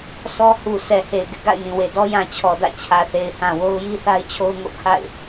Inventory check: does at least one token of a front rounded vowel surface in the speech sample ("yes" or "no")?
no